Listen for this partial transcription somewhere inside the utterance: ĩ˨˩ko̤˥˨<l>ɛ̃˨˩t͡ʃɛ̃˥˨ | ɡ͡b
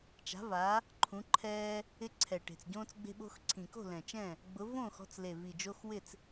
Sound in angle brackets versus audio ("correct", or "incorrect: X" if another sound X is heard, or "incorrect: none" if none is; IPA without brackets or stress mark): correct